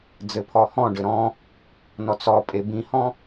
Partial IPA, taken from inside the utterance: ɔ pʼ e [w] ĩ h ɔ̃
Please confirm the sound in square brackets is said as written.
no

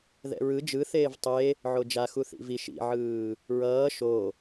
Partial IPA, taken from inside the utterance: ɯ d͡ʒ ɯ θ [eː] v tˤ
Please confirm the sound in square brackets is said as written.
yes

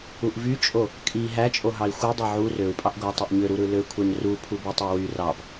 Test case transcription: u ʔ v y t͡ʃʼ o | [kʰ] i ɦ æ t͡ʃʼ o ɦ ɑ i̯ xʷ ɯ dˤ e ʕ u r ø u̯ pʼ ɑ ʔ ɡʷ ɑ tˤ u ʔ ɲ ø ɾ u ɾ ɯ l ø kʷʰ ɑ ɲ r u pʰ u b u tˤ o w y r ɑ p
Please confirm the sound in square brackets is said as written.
no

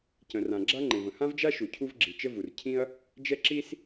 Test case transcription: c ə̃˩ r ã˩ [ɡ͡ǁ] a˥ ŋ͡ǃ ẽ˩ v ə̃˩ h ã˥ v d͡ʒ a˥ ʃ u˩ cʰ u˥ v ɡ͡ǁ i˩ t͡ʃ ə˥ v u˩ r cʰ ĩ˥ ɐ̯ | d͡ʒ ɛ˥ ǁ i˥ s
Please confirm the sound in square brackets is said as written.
yes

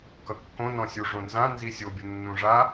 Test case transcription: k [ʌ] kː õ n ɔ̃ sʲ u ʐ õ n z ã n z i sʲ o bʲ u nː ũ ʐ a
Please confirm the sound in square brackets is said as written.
yes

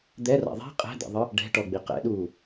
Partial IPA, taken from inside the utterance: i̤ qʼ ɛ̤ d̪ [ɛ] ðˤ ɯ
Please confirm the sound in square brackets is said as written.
no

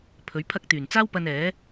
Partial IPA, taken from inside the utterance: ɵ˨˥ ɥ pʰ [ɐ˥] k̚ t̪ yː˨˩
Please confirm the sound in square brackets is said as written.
yes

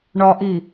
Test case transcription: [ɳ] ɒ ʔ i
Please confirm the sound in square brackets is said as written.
yes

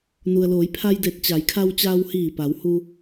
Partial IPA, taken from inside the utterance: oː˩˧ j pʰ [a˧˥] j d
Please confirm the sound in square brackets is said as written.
no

